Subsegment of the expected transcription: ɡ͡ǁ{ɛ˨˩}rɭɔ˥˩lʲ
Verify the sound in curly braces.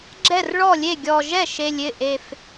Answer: incorrect: ɛ˥˩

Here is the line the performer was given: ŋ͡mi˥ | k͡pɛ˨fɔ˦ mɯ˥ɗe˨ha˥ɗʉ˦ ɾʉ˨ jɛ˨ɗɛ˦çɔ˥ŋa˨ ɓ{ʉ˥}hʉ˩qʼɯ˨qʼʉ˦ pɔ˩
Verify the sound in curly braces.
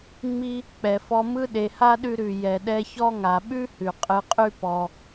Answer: correct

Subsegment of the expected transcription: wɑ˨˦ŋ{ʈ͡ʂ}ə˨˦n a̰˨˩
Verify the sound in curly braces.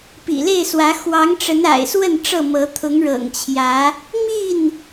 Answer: correct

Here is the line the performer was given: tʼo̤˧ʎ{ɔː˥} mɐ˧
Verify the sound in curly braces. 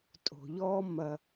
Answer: correct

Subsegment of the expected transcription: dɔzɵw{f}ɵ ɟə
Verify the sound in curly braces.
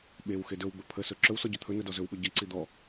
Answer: incorrect: ɓ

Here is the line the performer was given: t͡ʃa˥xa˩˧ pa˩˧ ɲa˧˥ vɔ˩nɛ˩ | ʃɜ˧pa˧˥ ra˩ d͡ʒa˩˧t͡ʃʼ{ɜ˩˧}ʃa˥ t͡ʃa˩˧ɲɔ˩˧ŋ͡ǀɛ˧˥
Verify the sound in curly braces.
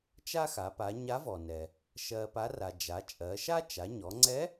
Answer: correct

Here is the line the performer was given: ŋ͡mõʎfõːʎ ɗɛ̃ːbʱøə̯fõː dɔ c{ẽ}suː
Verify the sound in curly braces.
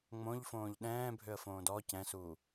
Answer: incorrect: ɛ̃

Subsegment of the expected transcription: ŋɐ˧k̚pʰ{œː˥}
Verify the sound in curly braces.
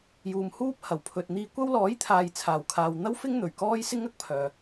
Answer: incorrect: œː˨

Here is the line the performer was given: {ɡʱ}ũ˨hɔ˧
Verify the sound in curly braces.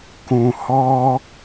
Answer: incorrect: k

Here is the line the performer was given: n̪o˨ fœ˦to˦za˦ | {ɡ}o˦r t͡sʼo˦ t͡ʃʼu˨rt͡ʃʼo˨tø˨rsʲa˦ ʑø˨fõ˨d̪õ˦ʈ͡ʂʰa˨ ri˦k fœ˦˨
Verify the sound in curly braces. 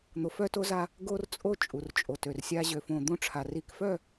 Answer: correct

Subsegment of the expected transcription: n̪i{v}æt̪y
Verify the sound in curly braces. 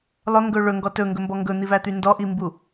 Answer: correct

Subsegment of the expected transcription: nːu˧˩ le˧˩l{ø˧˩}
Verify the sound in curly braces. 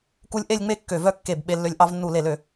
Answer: correct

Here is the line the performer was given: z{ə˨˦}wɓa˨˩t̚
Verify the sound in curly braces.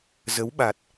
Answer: correct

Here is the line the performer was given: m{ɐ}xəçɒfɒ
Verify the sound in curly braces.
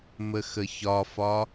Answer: incorrect: ə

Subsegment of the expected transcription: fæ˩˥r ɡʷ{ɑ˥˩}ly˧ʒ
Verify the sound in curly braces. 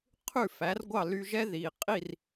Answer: correct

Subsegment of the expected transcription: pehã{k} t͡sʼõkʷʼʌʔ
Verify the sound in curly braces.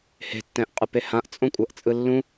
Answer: incorrect: ʔ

